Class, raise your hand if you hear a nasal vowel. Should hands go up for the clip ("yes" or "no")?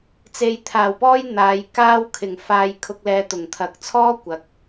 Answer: no